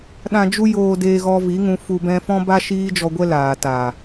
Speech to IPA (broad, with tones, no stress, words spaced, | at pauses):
ɗã˧d͡ʒu˦ joː˧deː˧ɣɔ˧ vi˨˦ŋũ˧ fu˧bɛ̃˦ fɔ̃˦ba˦ ʃiː˦d͡ʒɔ˧ɡʷɛ˦ laː˨ta˨